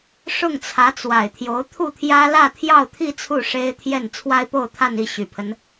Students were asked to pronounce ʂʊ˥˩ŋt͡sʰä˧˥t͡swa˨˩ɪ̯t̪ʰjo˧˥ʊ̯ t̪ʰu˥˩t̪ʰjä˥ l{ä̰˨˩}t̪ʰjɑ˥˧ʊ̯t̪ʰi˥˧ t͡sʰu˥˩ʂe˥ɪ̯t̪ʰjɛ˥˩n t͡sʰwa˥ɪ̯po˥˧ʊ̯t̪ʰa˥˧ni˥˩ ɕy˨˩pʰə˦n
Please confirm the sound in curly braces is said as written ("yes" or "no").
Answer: no